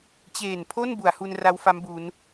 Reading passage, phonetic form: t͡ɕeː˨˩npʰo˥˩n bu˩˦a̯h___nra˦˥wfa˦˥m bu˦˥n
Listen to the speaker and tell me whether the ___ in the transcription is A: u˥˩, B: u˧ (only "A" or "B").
B